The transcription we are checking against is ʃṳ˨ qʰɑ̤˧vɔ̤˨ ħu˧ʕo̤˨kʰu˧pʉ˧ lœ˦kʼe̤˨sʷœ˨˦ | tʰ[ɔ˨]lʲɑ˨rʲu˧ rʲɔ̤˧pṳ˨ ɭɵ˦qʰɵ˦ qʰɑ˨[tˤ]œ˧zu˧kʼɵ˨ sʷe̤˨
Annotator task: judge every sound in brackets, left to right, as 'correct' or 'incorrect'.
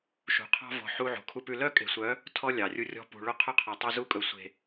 incorrect: ɔ˦, correct

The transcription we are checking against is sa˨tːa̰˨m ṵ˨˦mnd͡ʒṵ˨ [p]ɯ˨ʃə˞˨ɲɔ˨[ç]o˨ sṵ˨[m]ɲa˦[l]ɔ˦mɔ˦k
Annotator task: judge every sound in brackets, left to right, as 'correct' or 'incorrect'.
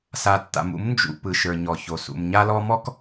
correct, correct, correct, correct

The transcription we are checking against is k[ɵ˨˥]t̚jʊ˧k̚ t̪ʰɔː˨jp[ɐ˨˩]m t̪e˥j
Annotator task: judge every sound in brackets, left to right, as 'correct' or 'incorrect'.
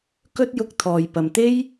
incorrect: ɵ˥, incorrect: ɐ˨

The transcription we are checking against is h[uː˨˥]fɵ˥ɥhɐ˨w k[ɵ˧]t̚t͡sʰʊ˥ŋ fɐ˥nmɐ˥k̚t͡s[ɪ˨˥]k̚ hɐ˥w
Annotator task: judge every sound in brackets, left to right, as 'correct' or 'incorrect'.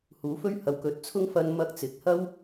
correct, incorrect: ɵ˨˥, correct

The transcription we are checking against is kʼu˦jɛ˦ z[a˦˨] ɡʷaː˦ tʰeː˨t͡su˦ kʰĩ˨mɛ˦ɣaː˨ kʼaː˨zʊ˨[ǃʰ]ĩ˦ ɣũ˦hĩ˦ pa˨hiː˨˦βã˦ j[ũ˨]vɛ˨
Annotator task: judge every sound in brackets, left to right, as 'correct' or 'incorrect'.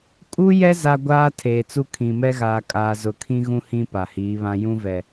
incorrect: a˦, incorrect: kʰ, incorrect: ũ˦

